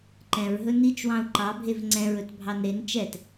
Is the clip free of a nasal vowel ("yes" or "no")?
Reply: no